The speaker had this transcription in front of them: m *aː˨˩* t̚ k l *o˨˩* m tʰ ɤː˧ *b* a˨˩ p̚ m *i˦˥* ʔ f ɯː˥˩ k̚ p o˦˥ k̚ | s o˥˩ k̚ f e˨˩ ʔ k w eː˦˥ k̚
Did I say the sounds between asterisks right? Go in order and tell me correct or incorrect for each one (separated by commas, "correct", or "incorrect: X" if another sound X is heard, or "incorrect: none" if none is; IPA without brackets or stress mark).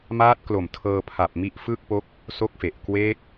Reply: incorrect: aː˦˥, correct, incorrect: pʰ, correct